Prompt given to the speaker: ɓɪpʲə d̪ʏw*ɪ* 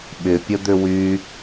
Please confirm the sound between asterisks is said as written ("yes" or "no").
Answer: no